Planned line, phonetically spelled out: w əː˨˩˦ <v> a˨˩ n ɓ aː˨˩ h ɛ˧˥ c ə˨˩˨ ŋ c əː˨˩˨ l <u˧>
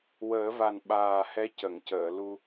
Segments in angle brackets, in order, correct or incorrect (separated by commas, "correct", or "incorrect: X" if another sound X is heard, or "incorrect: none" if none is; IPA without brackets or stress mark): correct, correct